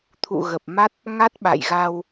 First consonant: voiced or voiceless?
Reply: voiceless